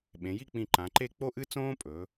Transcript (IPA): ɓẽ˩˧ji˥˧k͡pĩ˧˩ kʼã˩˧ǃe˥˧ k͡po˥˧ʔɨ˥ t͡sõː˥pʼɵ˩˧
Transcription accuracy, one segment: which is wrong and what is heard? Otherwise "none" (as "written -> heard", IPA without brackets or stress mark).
kʼ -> ǃ